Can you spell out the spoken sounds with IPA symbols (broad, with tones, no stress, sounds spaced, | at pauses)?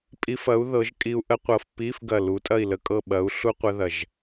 pʼ i˧ f ɐ˨˥ u̯ ð ɤ˨˥ ʒ kʼ i˧ u̯ ʔ ə˥ qʷ ɤ˧ f p i˧˥˧ f ɡ ɐ˧˩ l u˨˥ tʼ ɐ˥˨ i̯ l ə˧˩ kʼ ɤ˥˨ ɓ ɐ˨˥ u̯ ɬ u˥ qʷ ə˥ ð ɐ˧˩ ʒ